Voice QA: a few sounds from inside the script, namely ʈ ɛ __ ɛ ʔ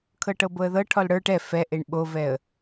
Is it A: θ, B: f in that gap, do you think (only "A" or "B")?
B